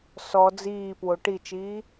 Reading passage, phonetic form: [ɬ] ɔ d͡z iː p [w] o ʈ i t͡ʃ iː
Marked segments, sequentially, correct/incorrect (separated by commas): incorrect, correct